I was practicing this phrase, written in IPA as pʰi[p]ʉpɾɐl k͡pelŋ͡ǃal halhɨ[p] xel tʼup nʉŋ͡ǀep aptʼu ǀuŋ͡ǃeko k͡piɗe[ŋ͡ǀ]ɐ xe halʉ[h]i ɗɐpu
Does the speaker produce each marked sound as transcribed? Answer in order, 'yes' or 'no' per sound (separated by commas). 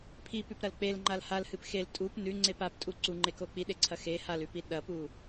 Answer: yes, yes, no, no